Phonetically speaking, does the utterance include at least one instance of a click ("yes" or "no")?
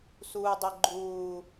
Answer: yes